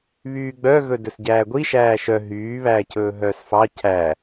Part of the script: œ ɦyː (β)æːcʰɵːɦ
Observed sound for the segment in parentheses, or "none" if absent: β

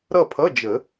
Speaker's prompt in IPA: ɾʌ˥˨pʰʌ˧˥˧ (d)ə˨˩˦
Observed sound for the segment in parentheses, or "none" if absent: d͡ʒ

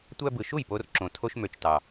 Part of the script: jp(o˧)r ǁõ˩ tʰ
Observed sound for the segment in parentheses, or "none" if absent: o˧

